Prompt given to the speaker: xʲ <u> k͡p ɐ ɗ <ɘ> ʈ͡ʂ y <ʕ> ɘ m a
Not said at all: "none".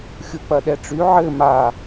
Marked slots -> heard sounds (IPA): u, ɛ, ʕ

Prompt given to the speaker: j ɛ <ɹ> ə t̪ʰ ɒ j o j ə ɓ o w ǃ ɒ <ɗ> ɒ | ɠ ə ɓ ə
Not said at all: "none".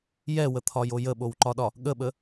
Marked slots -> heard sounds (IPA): w, ɗ

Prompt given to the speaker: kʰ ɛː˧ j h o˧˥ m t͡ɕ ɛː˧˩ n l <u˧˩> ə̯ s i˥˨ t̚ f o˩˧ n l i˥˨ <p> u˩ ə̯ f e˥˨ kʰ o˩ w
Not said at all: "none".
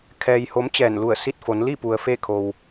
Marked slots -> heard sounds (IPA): u˧˩, p

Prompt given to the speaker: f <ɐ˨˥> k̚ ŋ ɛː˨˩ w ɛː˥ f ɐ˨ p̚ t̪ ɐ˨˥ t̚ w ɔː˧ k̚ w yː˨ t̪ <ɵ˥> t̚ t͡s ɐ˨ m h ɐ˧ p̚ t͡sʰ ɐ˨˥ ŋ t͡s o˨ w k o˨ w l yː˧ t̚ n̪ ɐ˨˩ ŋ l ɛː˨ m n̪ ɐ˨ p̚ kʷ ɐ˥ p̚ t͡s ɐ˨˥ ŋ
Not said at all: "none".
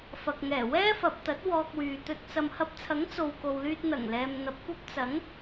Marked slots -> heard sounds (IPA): ɐ˨, ɵ˧

